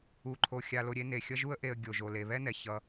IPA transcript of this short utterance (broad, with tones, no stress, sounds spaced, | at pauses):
u˨ ǃʰ o˨ xʲ a˨ l o˨ ɾʲ e˦ n e˩ xʲ ʌ˦ ʒ u˦ ə̯ ʔ e˨ ə̯ ɡʲ o˩ ʒ o˩ l e˩ β ɛ˥ n ɛ˩ ç ʌ˨